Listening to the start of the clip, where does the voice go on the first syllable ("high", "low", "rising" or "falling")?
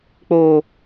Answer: low